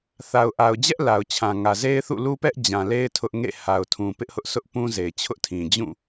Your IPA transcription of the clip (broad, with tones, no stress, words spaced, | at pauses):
θa˨ʊ̯ʔa˨ʊ̯d͡ʑɛ˦ʔ la˨ʊ̯t͡ɕʰã˨ŋä˨ ze˦ɪ̯θṵ˦˨lu˦pɛ˦ʔ d͡ʑã˨le˦ɪ̯ tʰʊ˦ʔ ŋḛ˦˨ ha˨ʊ̯tʰũ˨ pɪ˦ʔhʊ˦ʔsʊ˦ʔ pũ˦ze˨ɪ̯t͡ɕʰʊ˦ʔtʰĩ˨ d͡ʑũ˦˨